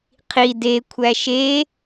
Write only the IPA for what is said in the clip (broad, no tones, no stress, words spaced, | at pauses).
qʰi de kʷʰæʃe